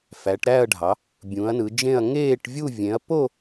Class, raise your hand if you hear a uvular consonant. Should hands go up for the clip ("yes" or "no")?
no